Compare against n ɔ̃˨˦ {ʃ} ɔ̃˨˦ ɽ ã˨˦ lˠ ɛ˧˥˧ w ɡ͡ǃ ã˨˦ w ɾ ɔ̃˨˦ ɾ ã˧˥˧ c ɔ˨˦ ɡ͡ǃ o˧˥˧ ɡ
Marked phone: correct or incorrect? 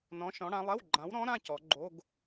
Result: correct